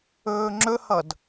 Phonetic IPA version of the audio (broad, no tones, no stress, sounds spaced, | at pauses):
ɵː ŋ͡ǁ ɵ h ʌ d